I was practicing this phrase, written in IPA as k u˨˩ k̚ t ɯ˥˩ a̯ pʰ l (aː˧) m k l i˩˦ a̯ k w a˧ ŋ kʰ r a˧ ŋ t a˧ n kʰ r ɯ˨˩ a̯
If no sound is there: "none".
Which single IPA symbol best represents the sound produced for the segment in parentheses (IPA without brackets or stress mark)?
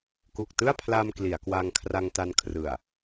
aː˧